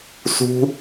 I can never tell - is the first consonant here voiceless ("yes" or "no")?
yes